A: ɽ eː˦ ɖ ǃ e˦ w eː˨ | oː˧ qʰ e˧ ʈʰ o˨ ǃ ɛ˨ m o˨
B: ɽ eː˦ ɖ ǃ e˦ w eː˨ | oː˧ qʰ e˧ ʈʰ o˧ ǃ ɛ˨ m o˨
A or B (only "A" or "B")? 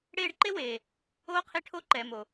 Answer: B